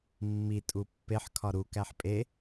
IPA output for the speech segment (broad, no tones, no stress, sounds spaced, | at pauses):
mː i tʼ u pː e ħ kʰ ɒ ɾ u k æ ħ pʼ e